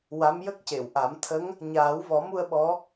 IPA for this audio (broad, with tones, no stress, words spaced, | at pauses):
wa˧˥mjə˦˥k̚ce˨˩˨wʔa˨˩˦m t̪ʰə˧˥ŋ | ɲaː˨˩˦wvɔ˨˩˦mu˧ə̯ ɓɔ˧˥